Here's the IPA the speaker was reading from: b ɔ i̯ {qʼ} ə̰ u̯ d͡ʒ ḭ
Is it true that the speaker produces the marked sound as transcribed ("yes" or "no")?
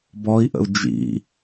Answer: no